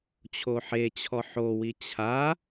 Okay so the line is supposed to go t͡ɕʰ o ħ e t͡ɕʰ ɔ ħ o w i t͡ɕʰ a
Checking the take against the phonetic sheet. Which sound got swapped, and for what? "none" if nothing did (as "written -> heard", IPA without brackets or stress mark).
none